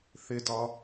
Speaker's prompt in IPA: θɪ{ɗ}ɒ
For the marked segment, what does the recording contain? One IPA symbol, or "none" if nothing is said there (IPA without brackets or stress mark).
d